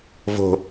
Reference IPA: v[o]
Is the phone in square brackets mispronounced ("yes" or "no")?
yes